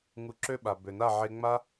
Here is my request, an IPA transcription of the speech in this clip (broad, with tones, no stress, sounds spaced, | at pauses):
ŋ u˧ ǁ ø˦ ɓ a˨ b ø˨ n a˦˨ ʕ e˧ ŋ͡m a˦